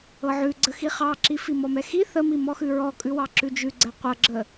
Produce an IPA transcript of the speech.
ɤ ʕ ʉ ɡ͡ǀ ə x i χ ɑ ǁ i f i m ɔ m ɛ x i θ ə m i m ɔ x ʉ ɹ ɔ kʼ ʉ w ɑ ǁ ʉ d͡ʒ ʉ ɡ͡ǀ ɛ qʷ ɤ ɡ͡ǁ ə

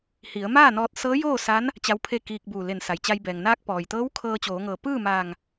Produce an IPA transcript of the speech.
h i˩˧ ə̯ m aː˥˨ n ɔː˧ t̚ s ɤː˧˥ j oː˥˨ s a˧˥ n | t͡ɕ a˧˥ w pʰ e˥˨ k iː˧ k̚ b uː˧˩ l e˧˩ n s a˩ j t͡ɕ a˧ j b ɛː˩ ŋ n aː˧ k̚ p ɔː˩ j t̪ ɤː˧˥ w kʰ ɤː˧ t͡ɕ oː˩˧ ŋ ɤː˩ p ɯː˥˨ m aː˧˩ ŋ

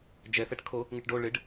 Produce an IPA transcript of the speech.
d͡ʒ ɛ θ ɛ ʈ kʰ o | ŋ ɪ ʈ ɖ o ɭ ɪ ɖ

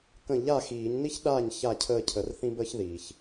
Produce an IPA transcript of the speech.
k ə̃˥˩ ʎ a˥˩ x iː˨˩˦ ɲ n i˥ ç ɗ aː˥˩ ɲ ç a˥˩ cʰ əː˥˩ cʰ ə˨˥ r θ ĩ˥ b əː˥ ç ð iː˩ ç

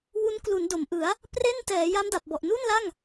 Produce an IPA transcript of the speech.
w u˦˥ n k l u˩˦ n d o˩˦ m ʔ ɯ˩˦ a̯ | p r e˥˩ n t ɛː˩˦ j a˦˥ m d a˨˩ p̚ b ɔ˨˩ ʔ n u˥˩ n l a˥˩ ŋ

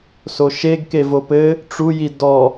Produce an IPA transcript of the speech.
s o ʃ e ɡ k e v o p ɘ | ʈ͡ʂ u j i d ɔ

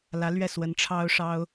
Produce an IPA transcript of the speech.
l ä˧˥ l ɥ ɛ˥˩ s w ə˧˥ n ʈ͡ʂʰ ɑ˥ ʊ̯ ʂ ɑ˥ ʊ̯

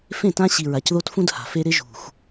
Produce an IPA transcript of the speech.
f ẽ˦˨ t ã˦ ɕ i˨ ɹ a˨ c ð o˦ t f ũ˦ d h a̤˨ f e˦ ɾ ɪ˦ ʒ ṳ˨ x

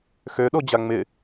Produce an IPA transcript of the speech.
x ø ɗ o d͡ʑ a ŋ͡m ɪ

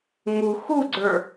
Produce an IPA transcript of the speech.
ŋ u x u ɡ͡ǀ ə˞

